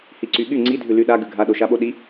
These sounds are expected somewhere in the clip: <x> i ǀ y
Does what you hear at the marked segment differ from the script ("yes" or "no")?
yes